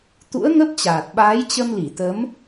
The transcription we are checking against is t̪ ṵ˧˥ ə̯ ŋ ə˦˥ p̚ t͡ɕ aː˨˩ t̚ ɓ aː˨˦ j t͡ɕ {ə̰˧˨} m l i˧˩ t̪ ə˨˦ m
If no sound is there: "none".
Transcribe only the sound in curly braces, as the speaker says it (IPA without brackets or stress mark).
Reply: ə˧